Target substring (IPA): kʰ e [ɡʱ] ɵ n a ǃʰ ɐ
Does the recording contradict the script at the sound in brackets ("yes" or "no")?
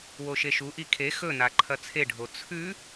yes